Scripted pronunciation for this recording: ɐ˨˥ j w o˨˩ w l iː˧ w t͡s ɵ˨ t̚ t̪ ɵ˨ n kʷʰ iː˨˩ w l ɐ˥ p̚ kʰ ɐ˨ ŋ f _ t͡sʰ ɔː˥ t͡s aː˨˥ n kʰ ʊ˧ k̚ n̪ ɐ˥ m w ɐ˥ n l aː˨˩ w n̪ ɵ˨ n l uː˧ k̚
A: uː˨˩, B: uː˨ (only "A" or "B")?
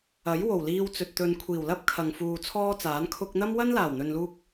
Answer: B